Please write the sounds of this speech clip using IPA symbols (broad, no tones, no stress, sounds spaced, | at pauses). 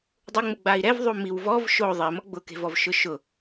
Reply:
dˤ ʊ ŋ͡m ʊ ɡ͡b a i̯ ɾ ɛ v ðˤ u m i w v ɔ v ʃ o ðˤ e m ɔ ɡ͡b ʊ k e̤ v ɔ v ʃ ʊ ʃ ʊ